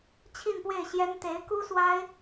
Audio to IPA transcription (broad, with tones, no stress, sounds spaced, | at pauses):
t͡ɕʰ i˥˧ n p w e˥˩ ɪ̯ ɕ j ɛ˥ n t̪ e˧˥ ɪ̯ k u˥ s w a˥ ɪ̯